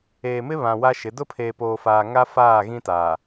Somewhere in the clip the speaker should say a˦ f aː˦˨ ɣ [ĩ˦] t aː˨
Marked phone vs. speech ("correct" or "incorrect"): correct